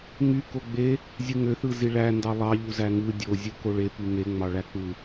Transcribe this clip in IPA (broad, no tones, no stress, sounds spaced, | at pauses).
ŋ y k o ɡ͡b e | zʲ ɯ ŋ ø θ ɯ z i ɭ æ n d ɑ lˠ ɑ ʎ u z æ ŋ ɯ dʲ o zʲ u k o ɭ e p y ŋ e ŋ͡m ɑ ɭ æ k͡p ɯ